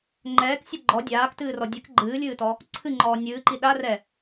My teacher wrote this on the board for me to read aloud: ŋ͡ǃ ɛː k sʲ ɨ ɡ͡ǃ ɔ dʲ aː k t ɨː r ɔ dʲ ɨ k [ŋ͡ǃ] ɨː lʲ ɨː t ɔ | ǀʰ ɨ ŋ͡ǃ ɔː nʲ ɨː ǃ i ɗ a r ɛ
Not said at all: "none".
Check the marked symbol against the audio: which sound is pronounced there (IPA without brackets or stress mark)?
ɡ͡ǃ